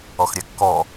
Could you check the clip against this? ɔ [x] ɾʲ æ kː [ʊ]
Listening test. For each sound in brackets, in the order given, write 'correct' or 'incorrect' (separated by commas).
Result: correct, incorrect